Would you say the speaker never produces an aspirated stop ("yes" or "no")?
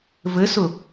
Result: yes